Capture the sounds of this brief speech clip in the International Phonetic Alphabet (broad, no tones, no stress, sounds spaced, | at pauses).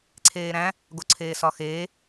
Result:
ǀʰ eː ɾ æ̃ | ɡ o ǀʰ eː s ɒ x eː